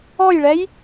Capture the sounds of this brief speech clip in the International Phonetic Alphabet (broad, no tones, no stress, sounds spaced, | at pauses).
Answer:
ɔ j ɭ ɛ j